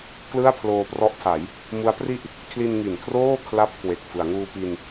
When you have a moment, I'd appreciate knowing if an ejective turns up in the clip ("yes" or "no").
no